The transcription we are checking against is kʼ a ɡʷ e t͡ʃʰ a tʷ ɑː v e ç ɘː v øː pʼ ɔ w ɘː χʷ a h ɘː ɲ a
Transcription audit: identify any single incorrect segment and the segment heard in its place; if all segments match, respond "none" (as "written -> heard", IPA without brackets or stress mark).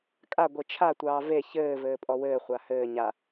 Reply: øː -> ɘː